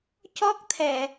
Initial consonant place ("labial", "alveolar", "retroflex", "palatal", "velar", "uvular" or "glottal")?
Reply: palatal